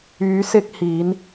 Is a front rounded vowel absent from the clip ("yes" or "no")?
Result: no